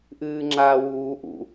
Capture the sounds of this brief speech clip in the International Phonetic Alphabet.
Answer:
ʔ ɨː ŋ͡ǁ aː w uː ʔ ṵ

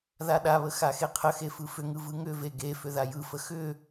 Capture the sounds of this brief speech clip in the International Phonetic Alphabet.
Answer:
ð a ɗ a β ə x a x e qʰ ə x e f ɯ f ʏ ŋ ɯ v ɯ ŋ ʏ v e ɡ e f ʏ ð a j ɯ f ə x ʏ

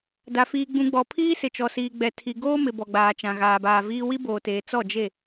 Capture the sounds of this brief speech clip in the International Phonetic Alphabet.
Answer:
d a˨ f iː˨ ɡ͡b ũ˨ ɡ͡b ɔ˨ pʰ iː˦ s ɪ˨ t͡ʃ ɔ˨ s iː˨ ɡ͡b ɛ˨ tʰ i˨ ɡ oː˦ m ɪ˨ b ɔ˨ ɡ͡b aː˨ t͡ʃ ã˨ ɣ aː˨ b aː˨ v iː˦ w i˦ b oː˨ t eː˨ t͡s ɔ˦˨ d͡ʒ e˦˨

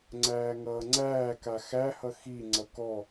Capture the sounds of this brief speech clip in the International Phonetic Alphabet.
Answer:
ŋ͡ǀ æː ŋ ʌː ŋ͡ǀ æː k a x æ h ʌ x i ŋ͡ǀ ʌ k ɔ

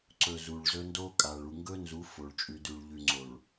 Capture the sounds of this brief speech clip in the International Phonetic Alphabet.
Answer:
ǀ ɵ˨ z u˨ ɭ z ɵ˦ n d o˦ kʼ a˨ ɭ u˨ ŋ ɡ ɵ˦ n z u˨˦ f o˨ ɭ t͡ʃʼ ʉ˨ d ʉ˨ ɭ ʎ ʉ˨ ŋ͡ǀ o˨ ɭ

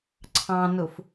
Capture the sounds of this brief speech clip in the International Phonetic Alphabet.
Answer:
ǀʰ ɑ̃ n ʊ f

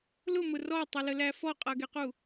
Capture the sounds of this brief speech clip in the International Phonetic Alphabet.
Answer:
l ʊ m ʊ r ɔ tˤ ə l ə l æ f ɔ qʼ ʌ ɡ ɛ q u

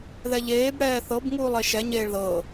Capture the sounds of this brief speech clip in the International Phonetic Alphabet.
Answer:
ð ɛ ʎ eː b ɽ ɛː θ ɤ b ŋ uː lˠ e ʃ ɛ ɲ eː ɭ ð ɤ

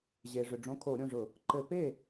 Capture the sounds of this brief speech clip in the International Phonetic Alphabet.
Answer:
ʑ e˩ ʐ ʏ˩ ɖ͡ʐ õ˩˧˩ kʰ o˧˩˧ ɾʲ õ˩˧˩ ʐ ʊ˧˩˧ | ǃ ɘ˧˩˧ p e˥˩

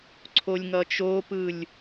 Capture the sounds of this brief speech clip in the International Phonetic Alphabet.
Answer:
ǀʰ o lʲ ŋ ʌ t͡ʃ o p ɯ lʲ

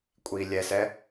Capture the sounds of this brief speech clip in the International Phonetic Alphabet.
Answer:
kʷʼ i lʲ ɛ s ɛ

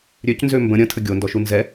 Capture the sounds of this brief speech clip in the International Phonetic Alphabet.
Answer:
ɾʲ ø c n z ø m b ə̃ ɾʲ ə̃ tʰ ə ɡʲ o n d ɔ ʃ u n z ɛ

